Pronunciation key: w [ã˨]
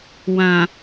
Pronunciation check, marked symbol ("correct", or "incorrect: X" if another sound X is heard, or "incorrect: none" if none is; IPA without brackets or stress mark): correct